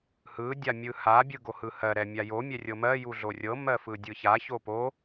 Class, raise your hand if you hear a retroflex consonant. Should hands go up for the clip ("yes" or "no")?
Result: no